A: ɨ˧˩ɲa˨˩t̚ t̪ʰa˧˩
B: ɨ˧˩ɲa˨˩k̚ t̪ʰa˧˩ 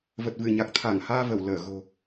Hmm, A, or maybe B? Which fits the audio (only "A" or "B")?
B